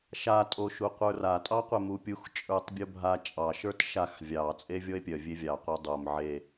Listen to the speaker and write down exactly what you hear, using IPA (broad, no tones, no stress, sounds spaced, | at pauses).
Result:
ʃ a tʼ o ʃ u qʷ ə˞ r a tʼ ɑ qʷ e m u pʲ u x t͡ʃʼ ə˞ tˤ bʲ o bʱ a t͡ʃʼ ɑ ʃ ə˞ t ʃ a x vʲ ɑ t͡sʼ e vʲ ɔ e̯ pʲ œ vʲ e vʲ ɑ qʷ œ dˤ o m ʕ e